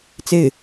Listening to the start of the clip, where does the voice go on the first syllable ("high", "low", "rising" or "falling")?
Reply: falling